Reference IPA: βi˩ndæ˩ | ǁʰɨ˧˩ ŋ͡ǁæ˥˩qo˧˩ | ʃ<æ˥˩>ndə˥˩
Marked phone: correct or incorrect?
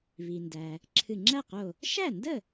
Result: correct